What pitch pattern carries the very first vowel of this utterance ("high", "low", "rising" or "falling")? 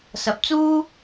rising